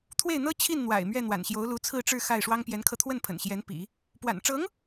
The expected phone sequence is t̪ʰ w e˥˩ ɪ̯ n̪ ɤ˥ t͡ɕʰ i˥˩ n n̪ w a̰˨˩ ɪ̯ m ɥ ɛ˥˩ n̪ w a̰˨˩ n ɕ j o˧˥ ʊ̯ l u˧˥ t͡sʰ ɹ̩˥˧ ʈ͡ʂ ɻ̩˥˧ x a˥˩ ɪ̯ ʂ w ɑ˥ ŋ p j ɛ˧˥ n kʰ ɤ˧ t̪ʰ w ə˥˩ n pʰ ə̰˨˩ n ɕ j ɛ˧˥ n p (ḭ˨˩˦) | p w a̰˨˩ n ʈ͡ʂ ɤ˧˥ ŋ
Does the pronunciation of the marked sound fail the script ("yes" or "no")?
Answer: no